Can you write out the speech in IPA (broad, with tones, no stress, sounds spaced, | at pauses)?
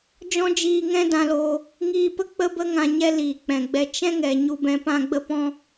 d͡ʒ ɔ̃˦ d͡ʒ iː˧ ŋ ɛ̃˦ d ã˧ l oː˧ | ŋ iː˧ p ə˦ k͡p ə˦ b ə˦ ŋ ã˧ ɲ ɛ˦ l iː˨ k͡p ɛ̃˨ ɡ͡b ɛ˧ t͡ʃ ɛ̃˦ ŋ ɛ˨ ɲ u˧ b ɛ̃˧ p ã˦ ɡ͡b ə˦ p ɔ̃˦